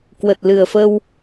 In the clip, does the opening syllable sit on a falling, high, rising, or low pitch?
low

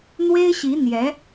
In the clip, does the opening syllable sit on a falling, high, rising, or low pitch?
high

